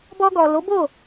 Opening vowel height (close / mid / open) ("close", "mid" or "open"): mid